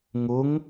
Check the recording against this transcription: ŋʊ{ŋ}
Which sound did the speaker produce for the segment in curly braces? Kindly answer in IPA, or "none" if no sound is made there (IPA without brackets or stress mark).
ŋ